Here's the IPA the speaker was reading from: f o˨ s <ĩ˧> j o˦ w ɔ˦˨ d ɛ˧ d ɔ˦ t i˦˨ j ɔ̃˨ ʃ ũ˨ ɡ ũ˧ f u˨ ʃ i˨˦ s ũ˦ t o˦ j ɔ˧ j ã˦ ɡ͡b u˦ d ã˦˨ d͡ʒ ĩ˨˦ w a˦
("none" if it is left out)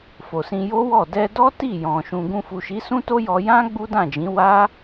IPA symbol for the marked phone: ĩ˧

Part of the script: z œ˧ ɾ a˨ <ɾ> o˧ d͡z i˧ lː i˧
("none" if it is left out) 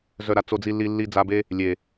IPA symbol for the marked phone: t͡s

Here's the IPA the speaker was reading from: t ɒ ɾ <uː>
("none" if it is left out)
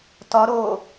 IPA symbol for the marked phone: oː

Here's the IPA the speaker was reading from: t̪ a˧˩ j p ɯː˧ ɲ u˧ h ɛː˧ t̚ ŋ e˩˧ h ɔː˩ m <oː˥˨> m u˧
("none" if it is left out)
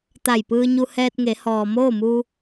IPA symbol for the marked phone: oː˥˨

